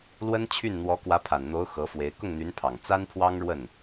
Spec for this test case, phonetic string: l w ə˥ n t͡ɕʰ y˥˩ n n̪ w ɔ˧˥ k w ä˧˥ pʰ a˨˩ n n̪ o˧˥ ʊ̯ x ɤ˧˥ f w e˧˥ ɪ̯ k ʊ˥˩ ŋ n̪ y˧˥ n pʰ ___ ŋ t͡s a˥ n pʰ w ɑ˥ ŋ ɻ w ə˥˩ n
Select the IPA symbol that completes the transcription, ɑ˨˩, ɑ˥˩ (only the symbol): ɑ˨˩